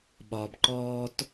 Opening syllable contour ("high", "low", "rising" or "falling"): low